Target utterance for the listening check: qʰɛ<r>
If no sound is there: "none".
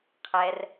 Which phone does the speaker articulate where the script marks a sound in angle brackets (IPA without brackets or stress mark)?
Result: r